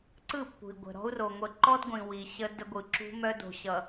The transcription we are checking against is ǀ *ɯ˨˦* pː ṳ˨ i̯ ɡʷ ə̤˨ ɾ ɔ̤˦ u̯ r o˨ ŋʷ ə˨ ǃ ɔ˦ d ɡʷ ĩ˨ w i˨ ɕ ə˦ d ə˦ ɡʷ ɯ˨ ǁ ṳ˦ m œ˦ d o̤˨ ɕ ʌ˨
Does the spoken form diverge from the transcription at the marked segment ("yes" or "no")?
yes